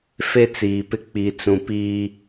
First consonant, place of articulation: labial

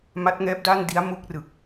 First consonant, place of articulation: labial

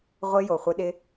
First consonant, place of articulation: uvular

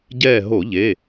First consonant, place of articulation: palatal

